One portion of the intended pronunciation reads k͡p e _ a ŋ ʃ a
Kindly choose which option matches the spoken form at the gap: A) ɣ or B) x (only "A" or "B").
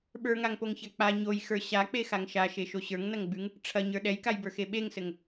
B